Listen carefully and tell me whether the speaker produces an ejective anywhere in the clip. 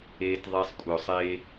yes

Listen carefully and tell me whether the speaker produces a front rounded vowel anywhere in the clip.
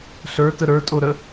no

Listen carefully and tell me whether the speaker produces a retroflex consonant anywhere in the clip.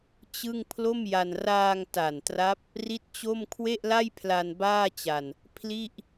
no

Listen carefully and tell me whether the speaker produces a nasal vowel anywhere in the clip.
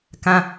yes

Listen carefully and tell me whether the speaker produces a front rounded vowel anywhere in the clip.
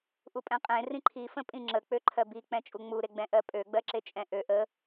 yes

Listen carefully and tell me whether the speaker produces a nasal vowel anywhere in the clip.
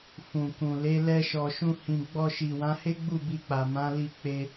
yes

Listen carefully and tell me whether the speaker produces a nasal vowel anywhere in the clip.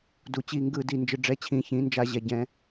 yes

